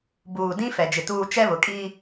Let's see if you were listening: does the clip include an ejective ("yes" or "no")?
yes